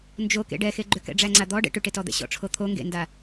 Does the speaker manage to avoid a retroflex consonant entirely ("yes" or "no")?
no